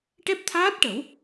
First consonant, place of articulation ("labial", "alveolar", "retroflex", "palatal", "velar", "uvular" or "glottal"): retroflex